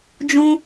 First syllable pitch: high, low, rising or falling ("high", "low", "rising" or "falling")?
high